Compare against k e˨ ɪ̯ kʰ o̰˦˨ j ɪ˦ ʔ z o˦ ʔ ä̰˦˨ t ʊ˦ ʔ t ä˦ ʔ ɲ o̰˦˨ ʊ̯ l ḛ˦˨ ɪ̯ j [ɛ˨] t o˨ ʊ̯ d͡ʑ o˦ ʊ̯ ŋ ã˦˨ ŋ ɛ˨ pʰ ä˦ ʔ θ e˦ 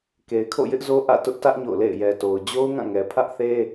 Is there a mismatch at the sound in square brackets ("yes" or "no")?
no